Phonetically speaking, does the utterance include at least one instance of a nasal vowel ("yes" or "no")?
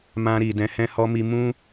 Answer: yes